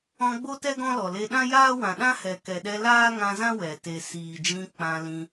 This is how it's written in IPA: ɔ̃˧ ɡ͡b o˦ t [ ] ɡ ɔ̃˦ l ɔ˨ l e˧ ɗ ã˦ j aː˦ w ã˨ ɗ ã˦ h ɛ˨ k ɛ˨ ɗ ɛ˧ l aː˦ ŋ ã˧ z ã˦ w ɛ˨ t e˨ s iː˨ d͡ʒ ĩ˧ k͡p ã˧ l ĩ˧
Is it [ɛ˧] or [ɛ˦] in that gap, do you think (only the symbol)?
ɛ˦